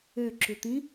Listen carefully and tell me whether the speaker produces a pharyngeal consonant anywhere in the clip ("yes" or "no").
no